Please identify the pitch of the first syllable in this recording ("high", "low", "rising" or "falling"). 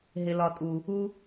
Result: low